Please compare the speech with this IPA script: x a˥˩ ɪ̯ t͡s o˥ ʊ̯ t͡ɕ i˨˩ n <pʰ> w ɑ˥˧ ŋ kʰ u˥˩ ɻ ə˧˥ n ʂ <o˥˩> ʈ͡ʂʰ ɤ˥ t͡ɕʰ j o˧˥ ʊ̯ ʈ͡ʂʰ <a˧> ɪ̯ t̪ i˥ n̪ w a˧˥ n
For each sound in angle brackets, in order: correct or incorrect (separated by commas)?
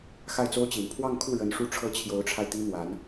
correct, incorrect, correct